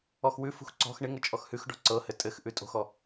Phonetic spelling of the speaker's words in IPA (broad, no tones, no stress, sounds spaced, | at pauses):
ɔ x w ʉ f ṳ x ǀ ɔ̤ x ɳ ɪ ŋ ɤ t͡ʃʼ ɔ x h ʉ x ɖ ɔ̤ ǀ ɤ h ɘ tʼ ɘ x ʔ ʉ tʼ o̤ x ɔ